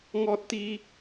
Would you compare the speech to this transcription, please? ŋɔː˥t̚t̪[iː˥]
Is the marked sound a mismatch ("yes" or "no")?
no